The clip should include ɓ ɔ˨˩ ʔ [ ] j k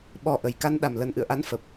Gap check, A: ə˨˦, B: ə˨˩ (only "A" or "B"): B